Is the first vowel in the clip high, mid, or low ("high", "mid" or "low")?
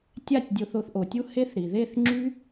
low